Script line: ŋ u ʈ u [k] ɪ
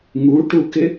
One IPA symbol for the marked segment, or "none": k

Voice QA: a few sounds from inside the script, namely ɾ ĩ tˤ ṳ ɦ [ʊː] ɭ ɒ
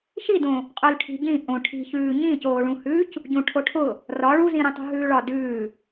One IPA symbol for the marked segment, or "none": ʉː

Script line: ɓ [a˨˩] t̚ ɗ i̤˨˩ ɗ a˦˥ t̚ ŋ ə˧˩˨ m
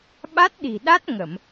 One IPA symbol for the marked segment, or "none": a˦˥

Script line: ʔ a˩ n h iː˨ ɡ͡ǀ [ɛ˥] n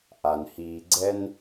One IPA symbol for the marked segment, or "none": ɛ˥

